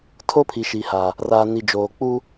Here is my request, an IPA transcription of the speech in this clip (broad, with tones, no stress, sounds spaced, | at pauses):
tʰ o˦ pʰ i˨ ʃ iː˨ h a˨ | r aː˨ n i˨ d͡ʒ oː˨ k͡p u˦